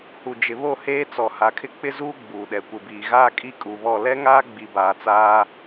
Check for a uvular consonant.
absent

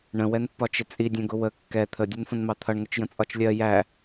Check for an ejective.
present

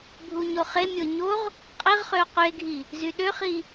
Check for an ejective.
present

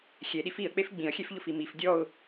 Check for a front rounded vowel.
absent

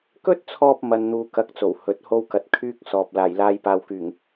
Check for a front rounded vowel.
present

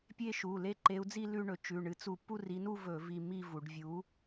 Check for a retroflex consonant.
present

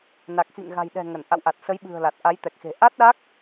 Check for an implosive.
present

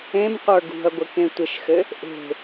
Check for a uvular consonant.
present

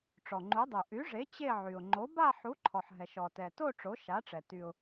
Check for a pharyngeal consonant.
present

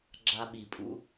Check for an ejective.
present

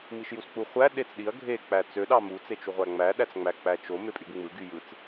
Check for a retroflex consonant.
absent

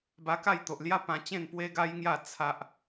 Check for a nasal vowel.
present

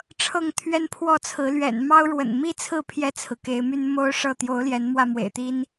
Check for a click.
absent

